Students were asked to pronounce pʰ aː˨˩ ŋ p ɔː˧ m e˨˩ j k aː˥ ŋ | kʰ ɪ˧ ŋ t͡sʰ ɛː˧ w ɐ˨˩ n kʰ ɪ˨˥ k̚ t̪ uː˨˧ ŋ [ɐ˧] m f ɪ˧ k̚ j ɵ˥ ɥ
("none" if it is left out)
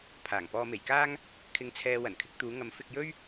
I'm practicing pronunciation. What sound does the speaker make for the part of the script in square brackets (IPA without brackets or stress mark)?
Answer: ɐ˨˥